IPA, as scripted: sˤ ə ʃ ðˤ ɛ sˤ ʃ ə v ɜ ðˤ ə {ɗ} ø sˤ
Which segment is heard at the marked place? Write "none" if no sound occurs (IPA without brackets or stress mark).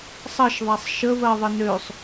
n